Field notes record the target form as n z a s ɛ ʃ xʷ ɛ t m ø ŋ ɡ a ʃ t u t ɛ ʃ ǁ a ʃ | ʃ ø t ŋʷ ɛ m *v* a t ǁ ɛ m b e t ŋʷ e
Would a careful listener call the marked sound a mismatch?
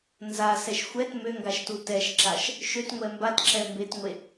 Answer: yes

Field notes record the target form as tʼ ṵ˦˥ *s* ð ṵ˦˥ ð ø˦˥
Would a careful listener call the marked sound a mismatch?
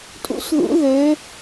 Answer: no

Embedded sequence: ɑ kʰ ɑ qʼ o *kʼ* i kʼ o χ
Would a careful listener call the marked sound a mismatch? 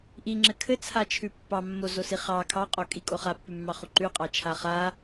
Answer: no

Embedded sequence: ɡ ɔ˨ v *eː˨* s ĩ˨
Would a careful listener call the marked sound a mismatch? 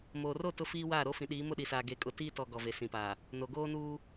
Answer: yes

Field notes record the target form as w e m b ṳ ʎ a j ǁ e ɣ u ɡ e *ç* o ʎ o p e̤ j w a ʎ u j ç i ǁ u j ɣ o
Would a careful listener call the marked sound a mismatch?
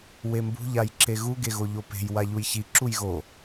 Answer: yes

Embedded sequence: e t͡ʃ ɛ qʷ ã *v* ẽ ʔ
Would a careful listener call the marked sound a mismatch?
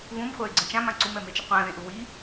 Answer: yes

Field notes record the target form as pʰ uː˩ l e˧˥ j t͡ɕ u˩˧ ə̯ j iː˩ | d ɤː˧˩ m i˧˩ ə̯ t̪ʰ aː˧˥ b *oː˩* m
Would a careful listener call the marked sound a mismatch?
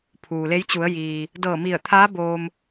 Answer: yes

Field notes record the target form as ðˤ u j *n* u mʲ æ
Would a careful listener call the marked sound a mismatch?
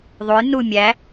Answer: no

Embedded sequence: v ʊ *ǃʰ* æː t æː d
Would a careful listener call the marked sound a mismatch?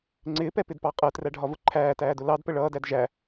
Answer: no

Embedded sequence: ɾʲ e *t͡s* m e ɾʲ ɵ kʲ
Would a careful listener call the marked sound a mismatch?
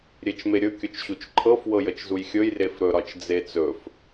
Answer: yes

